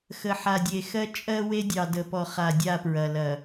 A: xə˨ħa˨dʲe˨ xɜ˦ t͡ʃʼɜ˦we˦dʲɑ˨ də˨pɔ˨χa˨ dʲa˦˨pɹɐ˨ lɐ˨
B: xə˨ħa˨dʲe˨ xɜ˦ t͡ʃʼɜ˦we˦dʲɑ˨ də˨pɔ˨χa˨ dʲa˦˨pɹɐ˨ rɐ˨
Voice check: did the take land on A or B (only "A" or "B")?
A